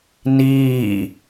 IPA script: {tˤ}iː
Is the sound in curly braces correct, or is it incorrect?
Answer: incorrect